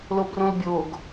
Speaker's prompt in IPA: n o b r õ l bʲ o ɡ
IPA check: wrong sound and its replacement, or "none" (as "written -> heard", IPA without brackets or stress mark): n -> l